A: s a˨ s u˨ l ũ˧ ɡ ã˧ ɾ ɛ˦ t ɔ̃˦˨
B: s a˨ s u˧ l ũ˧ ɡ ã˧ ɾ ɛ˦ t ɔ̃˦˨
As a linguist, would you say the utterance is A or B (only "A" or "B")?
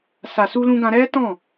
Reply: B